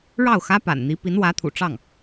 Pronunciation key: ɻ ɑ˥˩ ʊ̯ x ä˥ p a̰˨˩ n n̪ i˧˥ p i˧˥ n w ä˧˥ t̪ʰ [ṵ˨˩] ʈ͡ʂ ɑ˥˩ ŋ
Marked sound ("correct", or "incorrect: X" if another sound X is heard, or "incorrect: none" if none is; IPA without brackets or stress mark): correct